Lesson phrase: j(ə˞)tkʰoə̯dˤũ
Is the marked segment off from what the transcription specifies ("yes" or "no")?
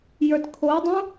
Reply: no